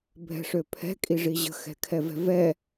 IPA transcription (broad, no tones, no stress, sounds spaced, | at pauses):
bʱ ɛ̤ ʂ ø pʰ ɛ̤ kʼ i ʐ i ʑ ə̤ x ɛ̤ kʰ ɛ v ɛ̤ v ɛ